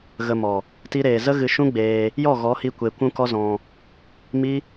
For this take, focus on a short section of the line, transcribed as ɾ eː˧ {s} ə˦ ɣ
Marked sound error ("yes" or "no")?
yes